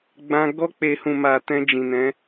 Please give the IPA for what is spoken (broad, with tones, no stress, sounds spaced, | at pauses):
ɡ͡b ã˧ ɡ ɔ˧ k͡p e˨ h ũ˨ m a˨ t ɛ̃˧ d͡ʒ ĩ˨ n ɛ̃˨˦